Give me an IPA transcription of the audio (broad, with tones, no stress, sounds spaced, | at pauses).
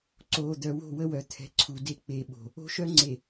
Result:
ǀ oː˨ d̪ œ˨ w o̤˦˨ w ə˦ w œ˨ t̪ʰ ɛ̤˨ ǀʰ u˨ d e˦ k͡p e˨ ɓ o̤˨ | o̤˦ ʃ œ˦ ŋ͡ǀ e˨